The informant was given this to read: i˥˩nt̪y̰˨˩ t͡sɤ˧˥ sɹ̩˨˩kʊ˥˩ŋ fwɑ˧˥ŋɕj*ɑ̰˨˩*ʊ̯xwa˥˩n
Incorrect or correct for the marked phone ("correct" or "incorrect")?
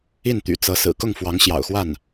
correct